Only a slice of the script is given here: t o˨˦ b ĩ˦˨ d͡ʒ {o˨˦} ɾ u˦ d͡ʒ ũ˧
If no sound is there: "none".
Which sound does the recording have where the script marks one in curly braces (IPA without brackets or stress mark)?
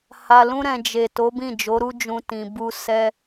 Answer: o˨˦